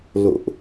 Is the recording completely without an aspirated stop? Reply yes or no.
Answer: yes